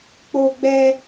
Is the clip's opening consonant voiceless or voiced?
voiceless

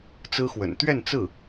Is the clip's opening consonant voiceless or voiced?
voiceless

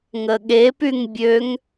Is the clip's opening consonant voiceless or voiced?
voiced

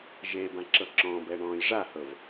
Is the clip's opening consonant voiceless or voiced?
voiced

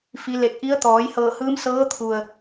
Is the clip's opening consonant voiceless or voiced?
voiceless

